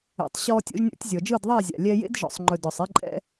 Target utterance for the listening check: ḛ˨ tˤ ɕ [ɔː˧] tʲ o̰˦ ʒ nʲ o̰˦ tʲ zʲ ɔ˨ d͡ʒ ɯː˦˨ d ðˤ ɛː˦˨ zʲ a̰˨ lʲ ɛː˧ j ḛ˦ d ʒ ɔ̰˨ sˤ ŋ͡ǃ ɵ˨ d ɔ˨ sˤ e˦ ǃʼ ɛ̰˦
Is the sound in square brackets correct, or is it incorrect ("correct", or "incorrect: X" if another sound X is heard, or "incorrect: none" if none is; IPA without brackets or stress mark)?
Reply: correct